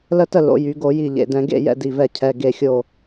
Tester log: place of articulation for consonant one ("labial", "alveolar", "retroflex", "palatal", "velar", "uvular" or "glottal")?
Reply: alveolar